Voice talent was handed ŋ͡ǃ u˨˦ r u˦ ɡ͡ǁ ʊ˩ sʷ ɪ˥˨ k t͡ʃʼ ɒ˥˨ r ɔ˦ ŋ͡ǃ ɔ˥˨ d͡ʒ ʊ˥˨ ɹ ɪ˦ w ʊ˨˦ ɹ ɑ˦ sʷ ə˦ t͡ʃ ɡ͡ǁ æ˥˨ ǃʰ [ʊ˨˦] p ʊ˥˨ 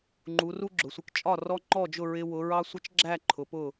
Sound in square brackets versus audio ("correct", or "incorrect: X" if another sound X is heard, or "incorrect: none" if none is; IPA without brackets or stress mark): correct